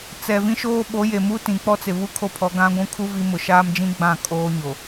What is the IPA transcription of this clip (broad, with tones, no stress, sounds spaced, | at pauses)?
t͡s ɛ˨ v ĩ˦ ʃ oː˦ ɓ o˨˦ j e˨ m u˦ t ĩ˨ k͡p ɔ˦ t͡s ɪ˨ β u˦ kʰ o˦ pʰ ɔ˨˦ ɡ ã˦ ɡʷ ũ˦ kʰ u˦ v i˦ m ʊ˨ ʃ aː˦ m d͡ʒ ĩ˦ ɡ͡b ã˦˨ kʼ oː˦ ɲ o˨